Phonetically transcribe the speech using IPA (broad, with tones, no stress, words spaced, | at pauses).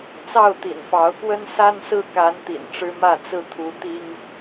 t͡sɑ˥˨ʊ̯t̪ḭ˨˩nfɑ˨˦ʊ̯kwə˦n sa˦nsɹ̩˥˨ka˨˦n t̪ḭ˨˩nʈ͡ʂɻ̩˦mä˥˨ t͡sɹ̩˥˨t̪ʰu˨˦t̪i˦ŋ